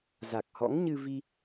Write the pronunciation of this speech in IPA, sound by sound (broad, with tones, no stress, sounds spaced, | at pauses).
z a˨˩ k̚ h ɔ̰˧˥ ŋ ɲ ɨ˧ v i˧